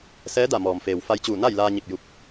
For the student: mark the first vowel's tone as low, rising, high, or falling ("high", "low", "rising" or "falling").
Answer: rising